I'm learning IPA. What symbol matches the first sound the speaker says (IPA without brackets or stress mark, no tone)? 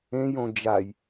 ẽ